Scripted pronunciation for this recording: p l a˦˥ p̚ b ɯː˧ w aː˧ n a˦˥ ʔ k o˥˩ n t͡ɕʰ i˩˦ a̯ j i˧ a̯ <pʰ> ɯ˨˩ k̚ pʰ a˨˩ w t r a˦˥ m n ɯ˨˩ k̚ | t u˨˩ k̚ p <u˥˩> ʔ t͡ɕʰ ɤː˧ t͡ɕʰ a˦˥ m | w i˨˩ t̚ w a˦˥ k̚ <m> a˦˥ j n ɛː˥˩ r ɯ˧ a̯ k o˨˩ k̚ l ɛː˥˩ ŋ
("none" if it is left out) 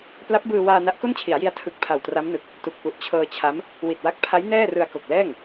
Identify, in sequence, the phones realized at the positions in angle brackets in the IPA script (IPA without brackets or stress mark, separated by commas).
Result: tʰ, u˨˩, pʰ